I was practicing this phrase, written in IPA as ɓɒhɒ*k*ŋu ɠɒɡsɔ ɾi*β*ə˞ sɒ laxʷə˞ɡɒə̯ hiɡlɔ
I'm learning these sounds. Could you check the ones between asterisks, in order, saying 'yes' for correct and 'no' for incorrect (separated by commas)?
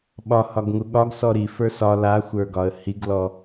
no, no